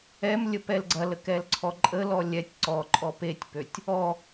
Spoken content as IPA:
ɛ m lʲ ə p ɛ l ɡ͡ǀ ɐ l ə k ɛ l ǀʰ ɔ ǃʼ ə l ɔ lʲ ɛ tʲ ǀ ɔ ǃʼ ɔ p e tʲ p ø tʲ | ɔ

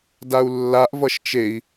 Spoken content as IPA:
d a u̯ lː a ʔ v ʌ ʃ t͡ʃ e i̯

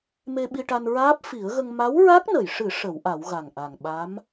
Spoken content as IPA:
m e˧ ɓ i˧ ʈ a˧ n ɹ aː˦˥ p̚ f i˨˩˦ ə̯ ɣ ə˧ ŋ m a˧˥ w ɹ a˦˥ k̚ n ə˨˩˨ j ʂ ɨ˨˩˦ ʂ ə˨˩˦ w ʔ a˨˩˦ w ɣ a˨˩ ŋ ʔ a˨˩ ŋ ɓ a˧˥ m

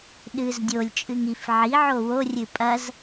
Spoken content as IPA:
ɗ ɨ z dʲ o lʲ t͡ʃʼ ɨ ŋ i f ʕ i ʕ o w o rʲ ɨ pʼ ɐ z

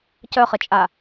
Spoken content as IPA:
c œ χ ə t͡ʃʼ a

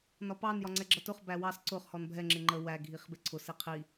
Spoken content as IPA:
n ɒ p ɑ n j ɒ ŋ͡ǀ ɛ ɡ͡ǁ ʌ t ʊ χ b æ w ɑ s ǀ ʊ χ h ɔ n bʱ ɛ ŋ͡ǁ ɪ ŋ͡ǃ ə w æ ɡʱ i χ b ɪ ǀʰ ʊ s i qʰ i

